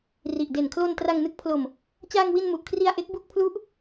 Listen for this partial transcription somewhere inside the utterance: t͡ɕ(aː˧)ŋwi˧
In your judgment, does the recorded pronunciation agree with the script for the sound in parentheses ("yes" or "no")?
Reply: yes